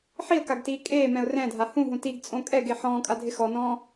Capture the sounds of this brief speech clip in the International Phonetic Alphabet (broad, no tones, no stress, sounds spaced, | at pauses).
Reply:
ħ i ə̯ k a ɡ t iː kʼ eː m ɛ̃ ʊ̯ r ɛ̃ dʱ a h ũ ɦ ũ t i ɡ t͡sʼ õ kʼ ɛ ɡ e ħ ɔ̃ː kʼ a dʱ ɪ x ɔ n ɔ̃ː